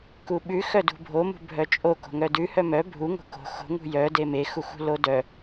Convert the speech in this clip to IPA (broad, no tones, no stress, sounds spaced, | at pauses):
k u ɓ ʉ x œ d ṳ bʱ o m ṳ bʱ œ t͡ʃʼ o k o̤ ŋ œ d ʉ h œ m œ bʱ u ŋ o̤ k o̤ x o̤ ŋ ṳ j œ d e m e x u x ṳ l o d œ